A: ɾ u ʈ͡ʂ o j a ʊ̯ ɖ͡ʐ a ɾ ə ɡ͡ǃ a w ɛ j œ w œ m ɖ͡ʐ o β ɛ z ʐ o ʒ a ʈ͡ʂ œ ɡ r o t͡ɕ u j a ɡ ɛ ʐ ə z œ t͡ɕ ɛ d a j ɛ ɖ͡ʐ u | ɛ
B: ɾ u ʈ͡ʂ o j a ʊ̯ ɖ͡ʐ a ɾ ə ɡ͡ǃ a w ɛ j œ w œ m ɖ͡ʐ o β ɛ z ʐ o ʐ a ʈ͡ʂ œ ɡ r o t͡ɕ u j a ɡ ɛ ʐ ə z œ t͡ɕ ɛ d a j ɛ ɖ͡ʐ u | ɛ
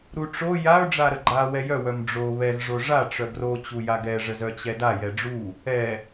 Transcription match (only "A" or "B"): B